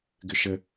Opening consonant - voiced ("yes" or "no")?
yes